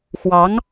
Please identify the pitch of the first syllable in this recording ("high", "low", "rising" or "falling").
rising